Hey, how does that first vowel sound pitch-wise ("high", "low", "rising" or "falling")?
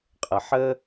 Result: low